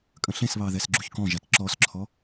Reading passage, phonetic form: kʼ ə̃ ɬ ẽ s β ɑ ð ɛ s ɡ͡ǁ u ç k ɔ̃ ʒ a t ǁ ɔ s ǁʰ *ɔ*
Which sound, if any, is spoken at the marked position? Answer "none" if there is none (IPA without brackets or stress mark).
ɔ